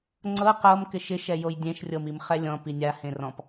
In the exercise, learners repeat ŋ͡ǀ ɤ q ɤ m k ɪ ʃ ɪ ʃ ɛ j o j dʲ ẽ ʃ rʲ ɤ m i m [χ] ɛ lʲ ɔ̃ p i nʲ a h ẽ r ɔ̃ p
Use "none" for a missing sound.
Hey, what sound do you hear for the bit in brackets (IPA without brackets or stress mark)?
χ